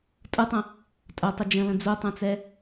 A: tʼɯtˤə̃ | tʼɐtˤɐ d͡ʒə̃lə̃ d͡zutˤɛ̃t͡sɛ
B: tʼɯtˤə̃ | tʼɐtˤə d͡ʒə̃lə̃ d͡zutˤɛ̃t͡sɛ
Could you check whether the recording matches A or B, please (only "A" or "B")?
B